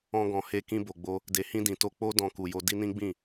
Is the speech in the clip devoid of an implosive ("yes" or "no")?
yes